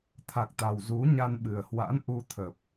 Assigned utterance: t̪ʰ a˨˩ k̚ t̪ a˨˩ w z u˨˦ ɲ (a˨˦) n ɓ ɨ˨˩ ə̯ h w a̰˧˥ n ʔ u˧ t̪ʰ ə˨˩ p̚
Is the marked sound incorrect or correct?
incorrect